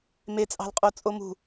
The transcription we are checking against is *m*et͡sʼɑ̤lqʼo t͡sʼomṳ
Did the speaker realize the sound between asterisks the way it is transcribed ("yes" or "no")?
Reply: yes